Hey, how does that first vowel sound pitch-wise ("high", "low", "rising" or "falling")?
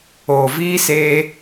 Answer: low